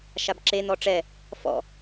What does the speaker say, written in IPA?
ʃabǁen̪ɔ ʈ͡ʂɛ | fɔ̰

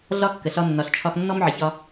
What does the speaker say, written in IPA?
ɮɒ˦kːə˨ɬɒ˧ nːɒ˨ɬt͡ʃʰɒ˧xnːɔ˦m ʕə˨çɒ˧

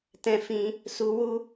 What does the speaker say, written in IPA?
tɛ̃˧fĩ˧ | su˧wu˦

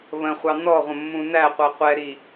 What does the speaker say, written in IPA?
βə̃χʷɑ nɔʁʷə̃mːũ næqʷə qʷɛɾi

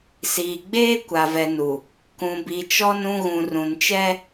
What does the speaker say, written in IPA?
siː˨ɡ͡beː˦ kʷa˨vɛ˨nu˨ | kũ˨bi˨t͡ʃɔ˦n ũ˦ɣũ˨rũ˨nt͡ʃɛ˦

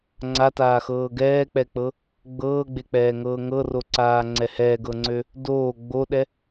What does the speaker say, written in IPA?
ŋ͡ǀataːxɤː ɡɛːk͡pɛk͡pɤ | ɡ͡bɤːɡ͡bek͡pɛːŋɤː ŋɤroǀaːŋ͡ǀɛ hɛːɡɤŋ͡ǀø | doː ɡ͡boɗɛ

